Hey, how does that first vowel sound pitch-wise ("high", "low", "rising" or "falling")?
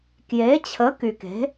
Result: rising